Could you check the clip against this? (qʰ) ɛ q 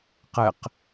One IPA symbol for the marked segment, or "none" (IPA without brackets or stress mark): q